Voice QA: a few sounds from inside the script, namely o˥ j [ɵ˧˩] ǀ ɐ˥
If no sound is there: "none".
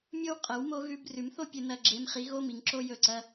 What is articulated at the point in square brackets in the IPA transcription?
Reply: ɵ˧˩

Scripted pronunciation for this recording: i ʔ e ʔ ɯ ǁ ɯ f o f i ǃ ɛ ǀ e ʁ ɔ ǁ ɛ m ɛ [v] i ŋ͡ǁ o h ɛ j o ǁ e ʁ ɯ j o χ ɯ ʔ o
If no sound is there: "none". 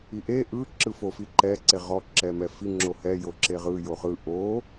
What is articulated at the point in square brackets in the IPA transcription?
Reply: f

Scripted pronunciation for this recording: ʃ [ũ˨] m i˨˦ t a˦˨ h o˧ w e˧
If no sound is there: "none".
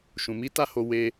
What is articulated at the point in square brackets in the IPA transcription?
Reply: ũ˨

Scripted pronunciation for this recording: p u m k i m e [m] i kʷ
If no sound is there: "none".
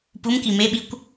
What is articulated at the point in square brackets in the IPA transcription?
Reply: ɓ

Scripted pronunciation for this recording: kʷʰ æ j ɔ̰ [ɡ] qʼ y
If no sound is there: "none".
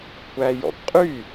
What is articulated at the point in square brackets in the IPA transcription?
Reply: ɡ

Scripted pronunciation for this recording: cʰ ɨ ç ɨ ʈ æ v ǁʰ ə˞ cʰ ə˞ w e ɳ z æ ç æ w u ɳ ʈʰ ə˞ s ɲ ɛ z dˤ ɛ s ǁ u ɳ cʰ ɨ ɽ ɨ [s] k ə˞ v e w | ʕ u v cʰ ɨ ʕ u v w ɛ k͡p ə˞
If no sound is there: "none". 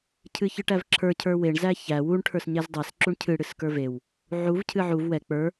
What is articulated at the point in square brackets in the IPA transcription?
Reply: s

